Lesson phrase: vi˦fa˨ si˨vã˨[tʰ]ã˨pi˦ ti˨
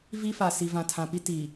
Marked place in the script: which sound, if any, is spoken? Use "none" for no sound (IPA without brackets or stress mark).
tʰ